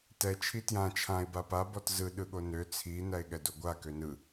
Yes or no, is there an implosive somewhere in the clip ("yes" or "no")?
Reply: yes